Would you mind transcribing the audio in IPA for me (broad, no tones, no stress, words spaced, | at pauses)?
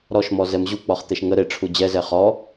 ɾɔʃmɔzɛm ʑuk͡pɔχt̪eʃ ŋə ɾeʈ͡ʂʰu d͡ʑɛzɛ χɔ